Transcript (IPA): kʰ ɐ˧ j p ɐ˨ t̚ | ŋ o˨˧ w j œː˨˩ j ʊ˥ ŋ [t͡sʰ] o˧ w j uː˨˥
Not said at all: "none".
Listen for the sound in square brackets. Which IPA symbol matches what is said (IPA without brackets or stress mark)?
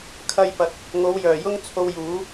t͡sʰ